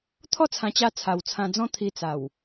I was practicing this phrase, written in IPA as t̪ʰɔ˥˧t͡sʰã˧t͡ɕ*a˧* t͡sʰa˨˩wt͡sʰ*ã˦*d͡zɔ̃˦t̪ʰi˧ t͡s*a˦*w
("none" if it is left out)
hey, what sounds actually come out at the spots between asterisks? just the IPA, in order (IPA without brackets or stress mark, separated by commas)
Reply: a˧, ã˧, a˨˩